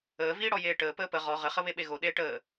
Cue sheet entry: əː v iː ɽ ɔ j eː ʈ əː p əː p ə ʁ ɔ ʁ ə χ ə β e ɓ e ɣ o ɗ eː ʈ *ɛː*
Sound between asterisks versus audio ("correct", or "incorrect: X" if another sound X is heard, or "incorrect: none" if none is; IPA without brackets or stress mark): incorrect: əː